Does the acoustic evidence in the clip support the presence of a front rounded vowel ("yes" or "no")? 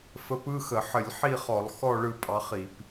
no